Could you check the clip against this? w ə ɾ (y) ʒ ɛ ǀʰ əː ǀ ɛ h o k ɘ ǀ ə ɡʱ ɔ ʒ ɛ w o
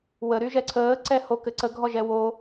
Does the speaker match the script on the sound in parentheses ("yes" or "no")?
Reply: yes